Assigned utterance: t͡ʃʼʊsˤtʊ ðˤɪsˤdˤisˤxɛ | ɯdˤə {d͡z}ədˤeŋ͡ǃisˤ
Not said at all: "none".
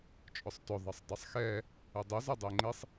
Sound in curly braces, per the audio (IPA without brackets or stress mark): z